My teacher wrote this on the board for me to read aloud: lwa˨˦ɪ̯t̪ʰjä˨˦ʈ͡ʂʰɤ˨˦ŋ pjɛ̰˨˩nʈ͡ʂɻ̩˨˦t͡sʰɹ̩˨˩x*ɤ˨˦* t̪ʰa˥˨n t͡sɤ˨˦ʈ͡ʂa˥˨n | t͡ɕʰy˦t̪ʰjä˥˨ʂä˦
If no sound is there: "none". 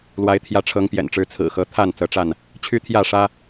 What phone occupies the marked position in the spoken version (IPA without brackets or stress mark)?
ɤ˨˦